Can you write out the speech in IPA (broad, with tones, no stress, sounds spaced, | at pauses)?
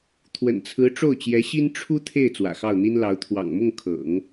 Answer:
t̪ʰ w ə̰˨˩ n t͡sʰ ɹ̩˧˥ ʈ͡ʂ o˥˩ ʊ̯ t͡ɕ j ɛ˧˥ ɕ i˥ n ʈ͡ʂʰ u˥ t̪ʰ e˥˩ ɪ̯ t͡s w ä̰˨˩ x ɑ˥˩ ʊ̯ n̪ i˥ n l ɑ˧˥ ʊ̯ t̪ʰ w ɑ̰˨˩ ŋ m ʊ˥˩ ŋ kʰ ɤ̰˨˩˦ ŋ